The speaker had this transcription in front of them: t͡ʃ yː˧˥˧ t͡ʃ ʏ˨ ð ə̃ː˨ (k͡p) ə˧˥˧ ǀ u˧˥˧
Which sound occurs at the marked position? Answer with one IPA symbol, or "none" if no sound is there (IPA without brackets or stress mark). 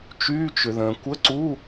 kʷ